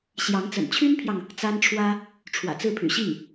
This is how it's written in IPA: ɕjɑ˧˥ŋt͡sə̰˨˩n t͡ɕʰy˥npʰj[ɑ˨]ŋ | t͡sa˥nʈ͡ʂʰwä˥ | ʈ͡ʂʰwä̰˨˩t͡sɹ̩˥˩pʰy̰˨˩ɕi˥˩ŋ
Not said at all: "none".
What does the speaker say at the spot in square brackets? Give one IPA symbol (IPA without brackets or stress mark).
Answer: ɑ˨